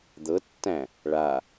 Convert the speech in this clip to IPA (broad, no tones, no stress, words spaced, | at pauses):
d̪ɤtːæ̃ | ɭa